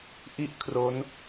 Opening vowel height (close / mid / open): close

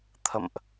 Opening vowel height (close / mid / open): mid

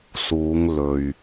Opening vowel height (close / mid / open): close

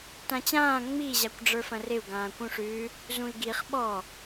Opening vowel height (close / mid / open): open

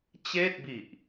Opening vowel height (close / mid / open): mid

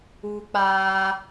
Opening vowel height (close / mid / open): close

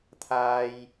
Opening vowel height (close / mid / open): open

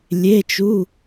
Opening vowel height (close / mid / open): mid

